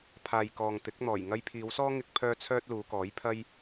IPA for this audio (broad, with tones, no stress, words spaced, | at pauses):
pʰaː˨j kɔː˨ŋt̪ɪ˨˥k̚n̪ɔː˨˩j ŋɐ˧jpʰiː˨˧wsɔː˥ ŋɪ˥k̚pʰœː˥ t͡sʰœː˥t̚luː˨˧kɔː˨˥j pʰɐ˥j